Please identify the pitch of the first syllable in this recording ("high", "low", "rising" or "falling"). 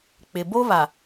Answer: low